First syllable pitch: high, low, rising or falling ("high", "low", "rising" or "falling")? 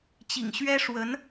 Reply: low